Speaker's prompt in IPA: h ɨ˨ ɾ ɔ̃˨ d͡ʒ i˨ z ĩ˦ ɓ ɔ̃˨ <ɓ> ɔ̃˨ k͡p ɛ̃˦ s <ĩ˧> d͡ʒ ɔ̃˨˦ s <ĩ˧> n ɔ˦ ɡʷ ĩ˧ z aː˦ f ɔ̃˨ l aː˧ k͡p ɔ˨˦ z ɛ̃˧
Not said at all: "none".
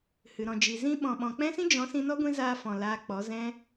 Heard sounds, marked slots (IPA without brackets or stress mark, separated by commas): ɓ, ĩ˦, ĩ˧